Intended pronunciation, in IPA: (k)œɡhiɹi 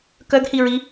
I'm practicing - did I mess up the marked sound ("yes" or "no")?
no